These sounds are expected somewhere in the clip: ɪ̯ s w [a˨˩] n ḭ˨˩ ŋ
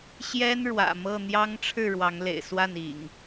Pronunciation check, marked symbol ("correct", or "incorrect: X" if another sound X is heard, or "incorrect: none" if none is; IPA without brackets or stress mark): incorrect: a˥˨